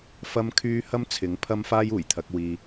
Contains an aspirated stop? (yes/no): yes